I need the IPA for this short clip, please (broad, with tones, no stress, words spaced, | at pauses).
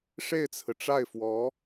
ʂe˥˩ɪ̯t͡sʰɹ̩˩ʈ͡ʂa˥˩ɪ̯fwɔ˧˥